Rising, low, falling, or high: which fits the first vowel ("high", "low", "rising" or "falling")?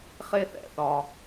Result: high